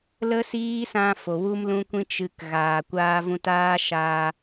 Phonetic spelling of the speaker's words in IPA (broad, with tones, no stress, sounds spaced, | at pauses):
l ə˦ s iː˦ s ã˧ f o˨ w u˦ m l ũ˦ kʷ ĩ˦ t͡ʃ ɨ˧ k ɣ aː˨ kʷ aː˧ v ũ˧ t aː˦ ʃ aː˧